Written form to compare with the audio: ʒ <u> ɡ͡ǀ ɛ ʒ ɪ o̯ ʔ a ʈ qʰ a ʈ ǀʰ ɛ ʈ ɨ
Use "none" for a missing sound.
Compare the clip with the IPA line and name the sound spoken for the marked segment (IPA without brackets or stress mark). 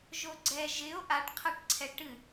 o